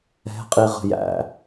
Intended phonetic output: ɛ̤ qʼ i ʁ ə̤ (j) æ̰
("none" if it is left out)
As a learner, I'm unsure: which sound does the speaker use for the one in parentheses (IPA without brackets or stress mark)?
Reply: j